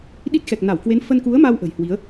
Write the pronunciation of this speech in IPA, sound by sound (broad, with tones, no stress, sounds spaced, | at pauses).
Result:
ɗ i˦˥ t̚ x ɛ˨˩ k̚ n a˧˩ w k w e˨˦ n f ə˧ n k u˨˦ ə̯ m a˧ w ʔ ə̤˨˩ j h w i˨˦ ə̯